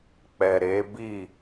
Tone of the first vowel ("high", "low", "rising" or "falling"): low